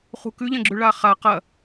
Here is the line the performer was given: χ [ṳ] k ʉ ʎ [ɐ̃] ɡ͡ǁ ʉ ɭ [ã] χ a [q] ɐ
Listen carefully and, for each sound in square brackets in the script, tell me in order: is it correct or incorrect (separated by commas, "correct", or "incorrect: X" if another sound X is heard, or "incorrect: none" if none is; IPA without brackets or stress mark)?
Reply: correct, correct, incorrect: a, correct